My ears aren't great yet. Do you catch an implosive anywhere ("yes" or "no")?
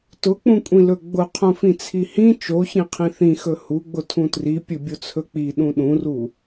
yes